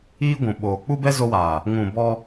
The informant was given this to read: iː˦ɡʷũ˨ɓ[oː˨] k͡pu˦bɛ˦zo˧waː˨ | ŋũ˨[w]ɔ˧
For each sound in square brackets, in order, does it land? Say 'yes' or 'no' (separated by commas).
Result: yes, no